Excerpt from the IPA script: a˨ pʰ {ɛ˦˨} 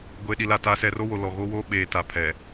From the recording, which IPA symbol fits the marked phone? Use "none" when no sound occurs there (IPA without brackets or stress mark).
ɛ˨